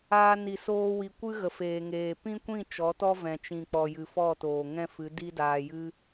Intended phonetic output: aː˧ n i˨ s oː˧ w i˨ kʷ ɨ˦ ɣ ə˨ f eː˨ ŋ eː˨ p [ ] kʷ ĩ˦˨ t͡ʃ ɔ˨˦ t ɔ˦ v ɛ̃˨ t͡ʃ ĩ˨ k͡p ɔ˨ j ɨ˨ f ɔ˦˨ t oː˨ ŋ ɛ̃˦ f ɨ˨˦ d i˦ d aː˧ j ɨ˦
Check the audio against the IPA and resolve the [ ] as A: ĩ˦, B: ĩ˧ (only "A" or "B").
A